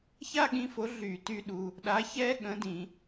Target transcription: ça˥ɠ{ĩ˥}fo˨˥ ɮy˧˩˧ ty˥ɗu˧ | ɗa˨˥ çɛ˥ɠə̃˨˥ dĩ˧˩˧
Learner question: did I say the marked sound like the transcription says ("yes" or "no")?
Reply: no